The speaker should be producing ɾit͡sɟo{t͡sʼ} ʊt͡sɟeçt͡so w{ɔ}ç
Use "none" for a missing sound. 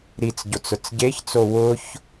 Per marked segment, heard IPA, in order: t͡s, ʊ

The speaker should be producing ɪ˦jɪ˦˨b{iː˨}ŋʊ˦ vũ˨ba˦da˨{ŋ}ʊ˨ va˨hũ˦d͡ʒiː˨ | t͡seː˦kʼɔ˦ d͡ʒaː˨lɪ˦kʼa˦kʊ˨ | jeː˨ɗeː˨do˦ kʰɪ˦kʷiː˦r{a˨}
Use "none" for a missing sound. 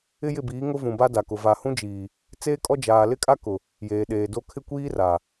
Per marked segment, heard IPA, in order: iː˨˦, k, a˨

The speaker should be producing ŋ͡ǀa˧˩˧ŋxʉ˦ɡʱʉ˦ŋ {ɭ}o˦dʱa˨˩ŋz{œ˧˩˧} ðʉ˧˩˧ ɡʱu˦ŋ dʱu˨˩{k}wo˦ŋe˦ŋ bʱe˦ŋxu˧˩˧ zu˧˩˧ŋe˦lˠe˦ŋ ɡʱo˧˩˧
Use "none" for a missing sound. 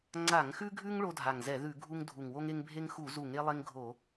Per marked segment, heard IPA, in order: ɭ, ɛ˧˩˧, ŋ

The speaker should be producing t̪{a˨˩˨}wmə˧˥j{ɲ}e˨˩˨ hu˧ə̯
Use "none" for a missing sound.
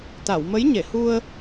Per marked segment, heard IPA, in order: a˨˩˨, ɲ

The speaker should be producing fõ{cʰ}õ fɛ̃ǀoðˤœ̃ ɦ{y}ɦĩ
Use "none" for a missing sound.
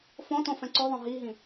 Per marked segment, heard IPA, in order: t, i

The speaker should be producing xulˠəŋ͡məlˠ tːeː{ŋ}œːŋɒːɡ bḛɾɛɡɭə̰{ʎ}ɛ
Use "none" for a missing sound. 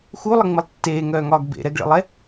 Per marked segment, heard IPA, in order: ŋ, lˠ

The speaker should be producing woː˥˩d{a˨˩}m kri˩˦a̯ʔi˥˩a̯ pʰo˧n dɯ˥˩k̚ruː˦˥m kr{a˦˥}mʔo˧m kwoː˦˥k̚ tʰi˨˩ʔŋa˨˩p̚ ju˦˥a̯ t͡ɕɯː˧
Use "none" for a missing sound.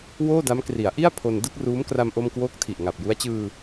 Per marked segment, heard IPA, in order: a˦˥, a˧

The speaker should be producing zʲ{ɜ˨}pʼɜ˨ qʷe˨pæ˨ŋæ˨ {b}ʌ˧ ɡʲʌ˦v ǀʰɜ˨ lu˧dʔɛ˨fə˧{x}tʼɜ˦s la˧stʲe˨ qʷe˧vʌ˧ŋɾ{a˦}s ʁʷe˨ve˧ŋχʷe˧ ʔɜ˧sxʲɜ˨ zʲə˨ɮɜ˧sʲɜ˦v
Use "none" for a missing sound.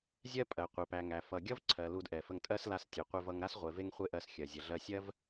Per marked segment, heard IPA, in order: ɜ˦, f, ŋ, a˦

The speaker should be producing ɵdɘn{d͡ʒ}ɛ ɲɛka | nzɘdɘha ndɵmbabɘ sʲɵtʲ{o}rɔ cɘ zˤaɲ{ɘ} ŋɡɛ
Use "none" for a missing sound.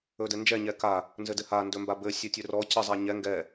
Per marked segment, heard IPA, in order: d͡ʒ, ɵ, ɛ

